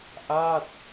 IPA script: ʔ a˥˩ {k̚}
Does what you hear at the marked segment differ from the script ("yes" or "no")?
yes